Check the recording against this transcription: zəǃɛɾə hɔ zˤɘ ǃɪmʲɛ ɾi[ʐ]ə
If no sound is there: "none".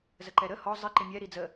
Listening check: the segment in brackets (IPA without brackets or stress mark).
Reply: d͡z